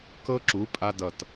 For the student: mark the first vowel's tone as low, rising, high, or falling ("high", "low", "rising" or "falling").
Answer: high